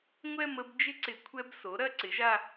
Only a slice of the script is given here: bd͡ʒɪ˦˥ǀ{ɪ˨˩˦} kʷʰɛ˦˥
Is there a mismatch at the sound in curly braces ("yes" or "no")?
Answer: no